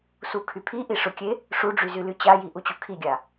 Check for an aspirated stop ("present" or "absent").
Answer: present